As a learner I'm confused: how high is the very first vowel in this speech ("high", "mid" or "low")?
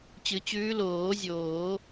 high